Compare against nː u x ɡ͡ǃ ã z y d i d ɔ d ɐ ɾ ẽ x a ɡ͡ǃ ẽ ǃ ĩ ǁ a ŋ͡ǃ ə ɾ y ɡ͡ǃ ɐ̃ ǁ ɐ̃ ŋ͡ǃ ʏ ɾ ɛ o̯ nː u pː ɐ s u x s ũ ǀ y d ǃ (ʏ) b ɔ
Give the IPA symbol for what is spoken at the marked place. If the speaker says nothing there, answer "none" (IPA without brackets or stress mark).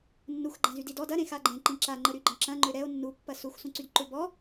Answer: ʏ